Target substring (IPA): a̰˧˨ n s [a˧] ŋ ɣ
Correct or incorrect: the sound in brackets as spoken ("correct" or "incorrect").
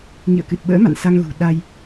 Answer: correct